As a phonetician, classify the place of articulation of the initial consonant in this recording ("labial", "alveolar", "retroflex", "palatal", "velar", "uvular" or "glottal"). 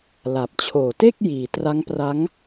alveolar